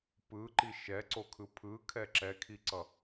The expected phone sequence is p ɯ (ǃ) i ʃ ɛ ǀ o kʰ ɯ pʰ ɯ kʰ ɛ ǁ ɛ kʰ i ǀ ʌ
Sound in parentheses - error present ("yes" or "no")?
no